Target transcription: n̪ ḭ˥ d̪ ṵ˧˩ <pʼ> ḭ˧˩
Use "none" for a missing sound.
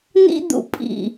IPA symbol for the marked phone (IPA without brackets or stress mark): pʼ